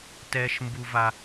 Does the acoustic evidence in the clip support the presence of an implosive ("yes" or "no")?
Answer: no